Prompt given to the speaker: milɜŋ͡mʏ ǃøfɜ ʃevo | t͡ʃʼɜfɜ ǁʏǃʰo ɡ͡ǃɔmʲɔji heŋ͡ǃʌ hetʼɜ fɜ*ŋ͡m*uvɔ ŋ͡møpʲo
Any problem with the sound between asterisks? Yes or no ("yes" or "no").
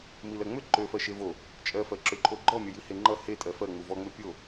no